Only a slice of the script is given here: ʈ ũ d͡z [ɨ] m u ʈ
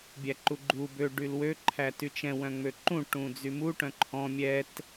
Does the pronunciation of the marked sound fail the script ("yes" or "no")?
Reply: yes